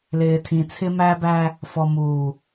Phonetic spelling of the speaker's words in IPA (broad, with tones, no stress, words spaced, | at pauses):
lɪː˨tʰĩ˨t͡sʰɪ˦ mæ˦bæ˦ | fɔ˨muː˨